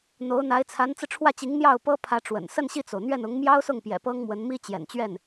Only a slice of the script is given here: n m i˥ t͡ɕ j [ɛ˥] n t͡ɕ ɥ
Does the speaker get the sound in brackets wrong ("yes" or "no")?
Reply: yes